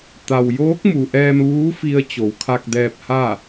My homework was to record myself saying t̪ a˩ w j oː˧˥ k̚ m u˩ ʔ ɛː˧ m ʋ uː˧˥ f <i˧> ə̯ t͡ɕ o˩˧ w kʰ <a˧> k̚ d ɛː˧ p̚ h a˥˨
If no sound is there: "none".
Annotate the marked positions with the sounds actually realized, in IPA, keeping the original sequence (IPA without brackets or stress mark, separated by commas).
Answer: i˧, a˧